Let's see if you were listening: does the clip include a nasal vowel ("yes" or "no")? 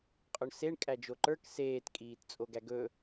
no